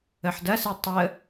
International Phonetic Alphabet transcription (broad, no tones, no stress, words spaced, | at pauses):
əħdɐse tˤə